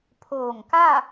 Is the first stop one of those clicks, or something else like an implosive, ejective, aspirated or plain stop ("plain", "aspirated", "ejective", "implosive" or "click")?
aspirated